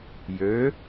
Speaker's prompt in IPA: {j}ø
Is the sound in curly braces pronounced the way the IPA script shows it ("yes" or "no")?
yes